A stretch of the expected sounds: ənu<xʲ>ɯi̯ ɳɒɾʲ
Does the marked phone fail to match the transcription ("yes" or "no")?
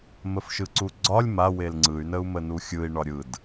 no